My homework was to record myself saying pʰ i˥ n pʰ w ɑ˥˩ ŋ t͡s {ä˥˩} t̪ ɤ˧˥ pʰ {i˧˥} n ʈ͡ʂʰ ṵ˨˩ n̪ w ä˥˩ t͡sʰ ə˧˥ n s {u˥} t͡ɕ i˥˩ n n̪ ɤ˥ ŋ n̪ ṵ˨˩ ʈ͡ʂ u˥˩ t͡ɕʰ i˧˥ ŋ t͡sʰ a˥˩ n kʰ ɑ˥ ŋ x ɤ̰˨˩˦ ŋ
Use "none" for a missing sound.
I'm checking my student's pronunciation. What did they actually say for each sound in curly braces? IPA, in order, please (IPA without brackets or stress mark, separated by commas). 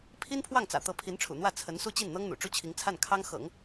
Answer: ä̰˨˩, i˧˥, u˥˧